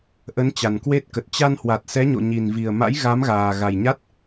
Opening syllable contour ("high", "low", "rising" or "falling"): rising